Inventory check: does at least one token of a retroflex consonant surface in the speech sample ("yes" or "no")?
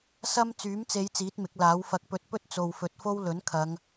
no